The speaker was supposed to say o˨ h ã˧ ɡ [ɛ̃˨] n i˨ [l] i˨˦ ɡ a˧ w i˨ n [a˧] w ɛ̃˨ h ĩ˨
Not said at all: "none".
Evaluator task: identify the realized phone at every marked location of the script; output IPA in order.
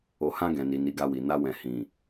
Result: ɛ̃˨, n, a˧

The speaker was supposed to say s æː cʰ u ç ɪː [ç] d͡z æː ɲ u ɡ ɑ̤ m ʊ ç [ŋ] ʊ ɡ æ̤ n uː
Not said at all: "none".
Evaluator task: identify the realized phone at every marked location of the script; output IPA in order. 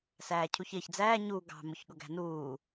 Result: ç, ɠ

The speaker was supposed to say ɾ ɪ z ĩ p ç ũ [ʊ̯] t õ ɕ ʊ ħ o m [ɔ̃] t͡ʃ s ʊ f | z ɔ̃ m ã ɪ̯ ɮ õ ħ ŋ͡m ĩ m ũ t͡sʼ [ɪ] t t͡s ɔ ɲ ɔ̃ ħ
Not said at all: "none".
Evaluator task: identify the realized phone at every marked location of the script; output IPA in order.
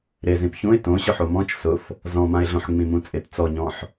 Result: ɪ̯, ɔ̃, ɪ

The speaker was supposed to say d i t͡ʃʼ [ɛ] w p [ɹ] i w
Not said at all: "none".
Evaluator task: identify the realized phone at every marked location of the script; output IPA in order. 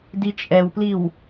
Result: ɛ, l

